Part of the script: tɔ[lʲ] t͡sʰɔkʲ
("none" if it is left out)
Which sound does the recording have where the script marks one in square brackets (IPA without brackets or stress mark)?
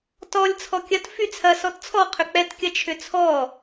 lʲ